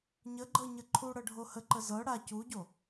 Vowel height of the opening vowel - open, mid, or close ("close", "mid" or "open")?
mid